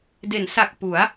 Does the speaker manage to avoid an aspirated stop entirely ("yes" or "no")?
yes